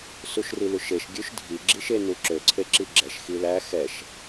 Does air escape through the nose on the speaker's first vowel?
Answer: no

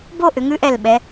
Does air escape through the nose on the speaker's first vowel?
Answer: no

